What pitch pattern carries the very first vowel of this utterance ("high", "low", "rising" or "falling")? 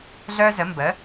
high